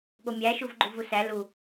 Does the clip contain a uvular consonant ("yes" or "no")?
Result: no